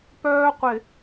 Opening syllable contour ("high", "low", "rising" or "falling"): high